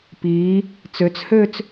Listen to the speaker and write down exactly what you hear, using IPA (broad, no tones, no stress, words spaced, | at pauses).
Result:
piː | t͡søt͡shøːt͡s